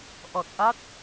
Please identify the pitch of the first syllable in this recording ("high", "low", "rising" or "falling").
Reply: low